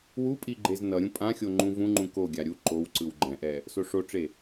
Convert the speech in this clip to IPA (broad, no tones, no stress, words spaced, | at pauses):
wupʼi ɡ͡ǃeznʌɾʲũ pʼãxʲo ŋ͡ǃũvũŋ͡ǃũ koɡʲa ɾʲu ǃowǀɯw ɡ͡ǃɛ̃ʔɛ | soʂoʈ͡ʂe